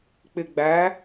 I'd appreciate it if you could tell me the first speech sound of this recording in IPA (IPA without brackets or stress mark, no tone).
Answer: k͡p